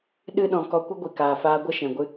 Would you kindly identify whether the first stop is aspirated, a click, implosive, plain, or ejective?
implosive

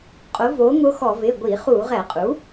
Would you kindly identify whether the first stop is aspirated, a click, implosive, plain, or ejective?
ejective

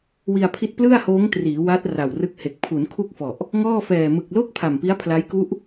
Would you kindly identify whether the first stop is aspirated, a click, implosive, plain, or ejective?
aspirated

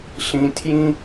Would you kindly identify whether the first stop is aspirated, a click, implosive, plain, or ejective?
aspirated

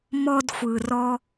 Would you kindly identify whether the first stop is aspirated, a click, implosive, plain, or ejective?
plain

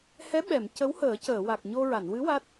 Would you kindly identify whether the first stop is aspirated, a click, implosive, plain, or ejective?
implosive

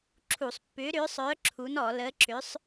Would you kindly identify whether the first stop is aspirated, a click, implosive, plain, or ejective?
click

